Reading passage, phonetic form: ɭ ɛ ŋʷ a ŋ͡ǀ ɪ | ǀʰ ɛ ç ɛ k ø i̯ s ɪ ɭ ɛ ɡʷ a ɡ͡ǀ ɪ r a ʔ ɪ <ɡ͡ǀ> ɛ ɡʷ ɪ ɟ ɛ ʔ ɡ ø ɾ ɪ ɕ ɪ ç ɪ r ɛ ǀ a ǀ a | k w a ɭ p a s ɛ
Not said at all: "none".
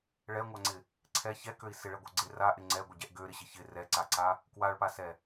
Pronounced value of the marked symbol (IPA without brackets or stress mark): ŋ͡ǀ